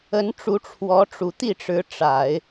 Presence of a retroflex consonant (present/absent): present